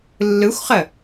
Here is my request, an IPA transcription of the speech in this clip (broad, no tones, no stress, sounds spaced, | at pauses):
lː ɯ xʷ χ ə